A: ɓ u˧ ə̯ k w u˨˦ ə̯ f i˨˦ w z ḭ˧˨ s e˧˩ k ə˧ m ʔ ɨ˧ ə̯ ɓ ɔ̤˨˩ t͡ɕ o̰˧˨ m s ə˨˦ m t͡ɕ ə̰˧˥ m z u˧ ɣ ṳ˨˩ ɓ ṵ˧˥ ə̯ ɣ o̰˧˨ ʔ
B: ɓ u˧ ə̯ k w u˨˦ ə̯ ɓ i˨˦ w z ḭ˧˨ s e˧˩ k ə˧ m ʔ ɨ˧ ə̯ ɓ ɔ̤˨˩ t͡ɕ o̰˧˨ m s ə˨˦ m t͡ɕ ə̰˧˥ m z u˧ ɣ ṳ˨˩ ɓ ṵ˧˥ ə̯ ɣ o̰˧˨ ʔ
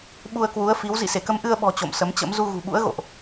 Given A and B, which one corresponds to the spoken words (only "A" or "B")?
A